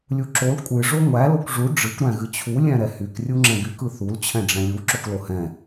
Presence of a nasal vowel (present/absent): present